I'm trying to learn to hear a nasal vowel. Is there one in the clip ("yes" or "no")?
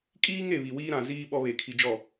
yes